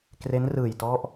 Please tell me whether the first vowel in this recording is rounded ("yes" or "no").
no